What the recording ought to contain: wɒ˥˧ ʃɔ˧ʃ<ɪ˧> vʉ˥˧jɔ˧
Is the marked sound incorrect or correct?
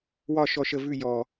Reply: incorrect